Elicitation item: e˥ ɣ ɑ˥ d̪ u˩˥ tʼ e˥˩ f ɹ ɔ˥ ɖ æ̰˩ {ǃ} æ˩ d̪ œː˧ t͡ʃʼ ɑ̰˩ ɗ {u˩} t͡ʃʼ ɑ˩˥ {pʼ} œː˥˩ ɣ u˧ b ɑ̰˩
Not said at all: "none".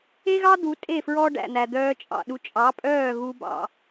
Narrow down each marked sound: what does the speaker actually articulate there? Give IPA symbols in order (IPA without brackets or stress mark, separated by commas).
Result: n̪, u˩˥, pʼ